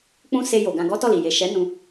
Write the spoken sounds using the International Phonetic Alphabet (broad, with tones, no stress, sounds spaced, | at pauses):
k͡p ũ˦ s e˧ j o˨ ɡ ã˧ ɡ ɔ˦ t ɔ˦˨ l i˨ j e˨ ʃ ɛ˨˦ n ũ˦